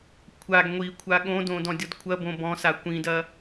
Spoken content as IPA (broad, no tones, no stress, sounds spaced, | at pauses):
kʷʰ a ɡ ŋʷ i kʷʰ a ɠ õ d õ d ɔ̃ dʲ ɔ d kʷʰ ɐ b õ b ɔ̃ s a kʷ ĩ d ɐ